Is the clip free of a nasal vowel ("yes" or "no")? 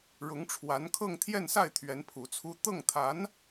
yes